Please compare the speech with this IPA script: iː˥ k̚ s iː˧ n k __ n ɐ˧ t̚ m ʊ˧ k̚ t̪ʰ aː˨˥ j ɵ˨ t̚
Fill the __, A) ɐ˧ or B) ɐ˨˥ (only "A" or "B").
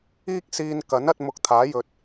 B